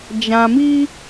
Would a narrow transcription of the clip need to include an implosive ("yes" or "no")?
no